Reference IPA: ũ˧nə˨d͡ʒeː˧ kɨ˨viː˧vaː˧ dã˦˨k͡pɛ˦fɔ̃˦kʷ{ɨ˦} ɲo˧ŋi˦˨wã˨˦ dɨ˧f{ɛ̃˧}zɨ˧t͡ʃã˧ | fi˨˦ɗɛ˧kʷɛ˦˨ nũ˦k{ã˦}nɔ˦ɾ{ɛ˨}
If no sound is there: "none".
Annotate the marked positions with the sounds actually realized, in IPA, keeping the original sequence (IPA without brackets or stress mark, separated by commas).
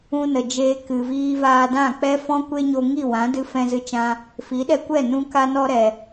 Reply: e˦, ɛ̃˧, a˦, ɛ˨